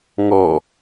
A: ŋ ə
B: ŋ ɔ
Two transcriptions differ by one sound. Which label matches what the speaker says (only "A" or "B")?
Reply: B